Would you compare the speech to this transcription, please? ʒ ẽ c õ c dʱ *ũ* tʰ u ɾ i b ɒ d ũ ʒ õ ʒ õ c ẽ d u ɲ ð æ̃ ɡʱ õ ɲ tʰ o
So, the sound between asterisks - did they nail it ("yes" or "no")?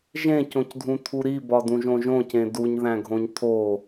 yes